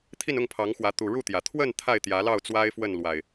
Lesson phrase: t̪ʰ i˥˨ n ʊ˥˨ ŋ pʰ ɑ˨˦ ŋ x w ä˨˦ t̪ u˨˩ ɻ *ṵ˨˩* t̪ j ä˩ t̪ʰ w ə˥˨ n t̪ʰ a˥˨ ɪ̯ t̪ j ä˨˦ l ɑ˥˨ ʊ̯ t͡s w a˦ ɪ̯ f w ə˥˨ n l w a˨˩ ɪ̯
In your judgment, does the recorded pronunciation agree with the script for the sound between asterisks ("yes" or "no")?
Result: no